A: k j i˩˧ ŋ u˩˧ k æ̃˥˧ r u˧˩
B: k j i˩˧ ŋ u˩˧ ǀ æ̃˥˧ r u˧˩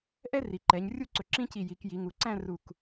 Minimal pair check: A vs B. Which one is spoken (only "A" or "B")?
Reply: B